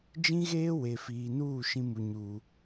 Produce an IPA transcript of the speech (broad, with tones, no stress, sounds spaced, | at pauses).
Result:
d͡ʒ ĩ˦ ɣ eː˦ w e˨ f iː˨ n uː˦˨ ʃ ĩ˦ m u˨ ɲ uː˨